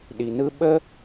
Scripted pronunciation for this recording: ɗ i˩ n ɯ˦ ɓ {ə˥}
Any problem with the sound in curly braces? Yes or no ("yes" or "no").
no